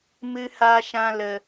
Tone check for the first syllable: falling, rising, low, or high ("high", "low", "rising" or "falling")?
high